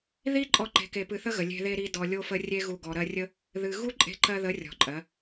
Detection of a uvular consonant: absent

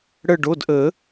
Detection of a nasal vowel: absent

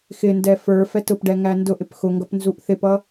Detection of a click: absent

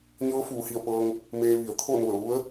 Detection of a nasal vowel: absent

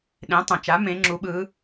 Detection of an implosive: present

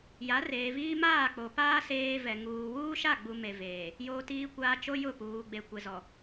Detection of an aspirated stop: absent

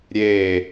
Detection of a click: absent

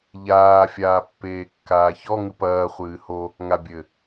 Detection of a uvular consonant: present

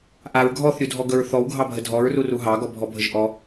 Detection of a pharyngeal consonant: absent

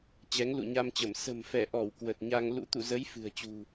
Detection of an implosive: absent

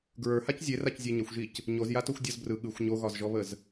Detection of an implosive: present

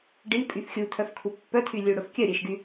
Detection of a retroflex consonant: present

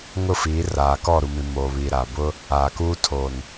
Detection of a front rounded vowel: absent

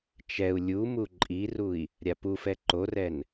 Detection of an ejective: present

